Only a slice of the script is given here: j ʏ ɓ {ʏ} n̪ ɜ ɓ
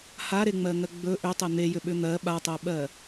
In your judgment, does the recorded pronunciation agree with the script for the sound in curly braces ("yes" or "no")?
yes